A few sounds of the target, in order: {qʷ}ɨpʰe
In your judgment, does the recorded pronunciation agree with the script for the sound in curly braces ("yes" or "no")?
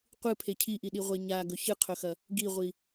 yes